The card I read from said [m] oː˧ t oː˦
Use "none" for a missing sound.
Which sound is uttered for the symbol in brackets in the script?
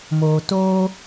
m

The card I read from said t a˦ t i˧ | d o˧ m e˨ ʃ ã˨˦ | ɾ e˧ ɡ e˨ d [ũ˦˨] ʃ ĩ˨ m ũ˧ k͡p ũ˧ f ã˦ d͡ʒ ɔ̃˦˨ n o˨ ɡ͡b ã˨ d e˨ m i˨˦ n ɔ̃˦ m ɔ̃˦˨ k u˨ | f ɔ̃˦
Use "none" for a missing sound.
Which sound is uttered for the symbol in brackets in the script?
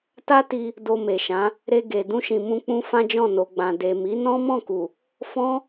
ũ˧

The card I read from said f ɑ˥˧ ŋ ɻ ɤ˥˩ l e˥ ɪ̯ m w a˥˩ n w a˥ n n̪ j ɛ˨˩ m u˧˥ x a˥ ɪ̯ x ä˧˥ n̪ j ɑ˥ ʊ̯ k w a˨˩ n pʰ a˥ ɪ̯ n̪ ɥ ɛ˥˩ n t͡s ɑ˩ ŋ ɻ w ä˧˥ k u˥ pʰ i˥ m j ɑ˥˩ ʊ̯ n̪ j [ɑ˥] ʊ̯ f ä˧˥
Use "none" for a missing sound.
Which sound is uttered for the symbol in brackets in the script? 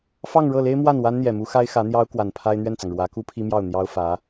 ɑ˥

